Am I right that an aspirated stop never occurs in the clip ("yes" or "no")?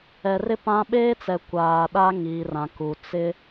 yes